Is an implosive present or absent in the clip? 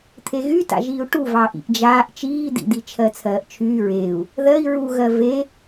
absent